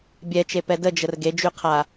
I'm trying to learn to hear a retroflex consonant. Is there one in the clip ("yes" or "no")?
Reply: no